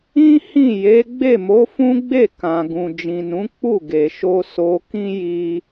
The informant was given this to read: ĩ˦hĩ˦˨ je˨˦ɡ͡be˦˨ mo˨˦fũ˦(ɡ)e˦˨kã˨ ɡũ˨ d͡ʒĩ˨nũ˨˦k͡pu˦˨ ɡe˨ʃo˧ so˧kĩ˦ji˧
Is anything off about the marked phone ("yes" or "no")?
yes